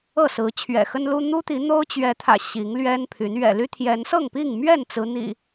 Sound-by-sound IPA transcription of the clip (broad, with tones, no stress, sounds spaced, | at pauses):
ɤ˥˨ s ɹ̩˨˦ t͡ɕʰ ɥ ɛ̰˨˩ x ə˦ n l u˦ n̪ u˦ t̪ i˨˦ n̪ o˦ ʊ̯ t͡ɕ ɥ ɛ˨˦ t̪ʰ ä̰˨˩ ɕ i˨˦ ŋ l ɥ ɛ˦ n pʰ y˨˦ n ɥ ɛ̰˨˩ l y˦ t̪ʰ j ɛ˨˦ n s ɤ˥˨ ŋ p i˥˨ ŋ m ɥ ɛ˥˨ n t͡s ɹ̩˨˦ n̪ ḭ˨˩